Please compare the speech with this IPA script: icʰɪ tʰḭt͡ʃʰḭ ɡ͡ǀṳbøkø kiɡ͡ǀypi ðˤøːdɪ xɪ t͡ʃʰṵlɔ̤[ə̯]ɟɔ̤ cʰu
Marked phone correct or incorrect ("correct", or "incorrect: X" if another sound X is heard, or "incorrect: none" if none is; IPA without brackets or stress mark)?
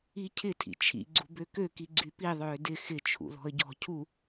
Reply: correct